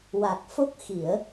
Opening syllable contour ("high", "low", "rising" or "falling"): low